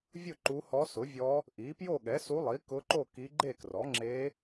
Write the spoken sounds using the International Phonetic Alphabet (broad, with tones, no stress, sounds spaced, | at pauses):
vʲ ʊ˥˨ ǃ u˧˥ h ɔ˧˥ s ʊ˩˥ vʲ ɔ˧˥ | ʔ i˩˥ p j o˥˨ ɠ ɛ˩˥ s u˧˥ lˠ i˩˥ k ʊ˧˥ ǃ o˥˨ k i˧˥ ɡ͡ǃ e˥˨ k r ɔ˩˥ ŋ͡ǁ e˧˥